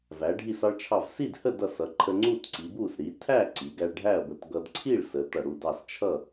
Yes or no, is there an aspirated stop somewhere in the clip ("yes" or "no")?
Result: yes